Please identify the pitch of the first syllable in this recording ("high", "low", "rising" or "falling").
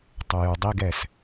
low